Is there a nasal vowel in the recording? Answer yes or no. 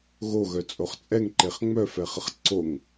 no